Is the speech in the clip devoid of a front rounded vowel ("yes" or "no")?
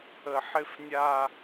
yes